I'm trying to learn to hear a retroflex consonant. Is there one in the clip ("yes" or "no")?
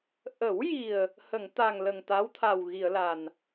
no